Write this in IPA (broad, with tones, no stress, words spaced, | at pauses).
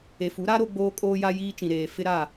e˨fu˨˦ɾa˦ ɾo˦ɡ͡boː˦kʼoː˦ja˦ jiː˦t͡ʃĩ˨ɾeː˨ fɪ˦ɾa˦˨